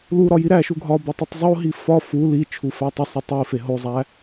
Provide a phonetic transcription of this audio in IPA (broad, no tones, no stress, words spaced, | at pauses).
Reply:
luɾɒ jiɾæʃu ɡʱɒ bɒtˤutˤzˤoɦi fɒ fu li t͡ʃʰufætˤisˤi tˤife ɦozˤæ